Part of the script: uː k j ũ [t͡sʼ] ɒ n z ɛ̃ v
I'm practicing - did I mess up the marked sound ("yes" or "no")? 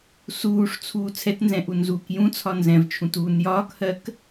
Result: yes